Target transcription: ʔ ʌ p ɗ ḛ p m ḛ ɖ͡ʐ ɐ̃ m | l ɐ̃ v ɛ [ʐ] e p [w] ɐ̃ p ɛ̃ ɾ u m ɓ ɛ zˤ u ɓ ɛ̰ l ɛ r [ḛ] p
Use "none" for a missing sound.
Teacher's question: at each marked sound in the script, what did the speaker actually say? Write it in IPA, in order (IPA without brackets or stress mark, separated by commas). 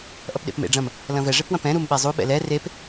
ʐ, w, e